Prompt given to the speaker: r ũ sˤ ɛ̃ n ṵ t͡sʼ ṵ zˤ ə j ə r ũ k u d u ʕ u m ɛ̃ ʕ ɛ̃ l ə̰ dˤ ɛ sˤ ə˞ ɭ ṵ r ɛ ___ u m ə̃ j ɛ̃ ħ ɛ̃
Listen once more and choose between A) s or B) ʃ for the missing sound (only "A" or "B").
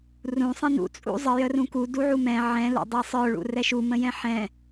B